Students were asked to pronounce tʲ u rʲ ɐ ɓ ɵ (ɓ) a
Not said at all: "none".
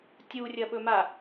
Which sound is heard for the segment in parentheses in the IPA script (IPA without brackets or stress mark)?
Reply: m